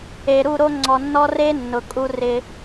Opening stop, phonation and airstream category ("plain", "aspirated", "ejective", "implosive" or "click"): click